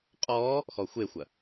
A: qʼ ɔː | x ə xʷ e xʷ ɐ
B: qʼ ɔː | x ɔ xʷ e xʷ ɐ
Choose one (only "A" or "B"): B